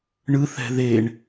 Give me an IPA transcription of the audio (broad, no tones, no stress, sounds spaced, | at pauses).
ɳ ɯ θ ɛ̤ ð e ɳ